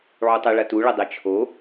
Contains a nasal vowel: no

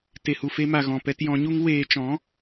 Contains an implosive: no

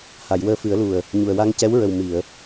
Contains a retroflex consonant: no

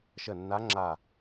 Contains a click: yes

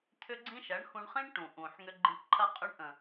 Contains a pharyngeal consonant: yes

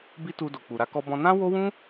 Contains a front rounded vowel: no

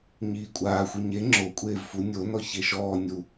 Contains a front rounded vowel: no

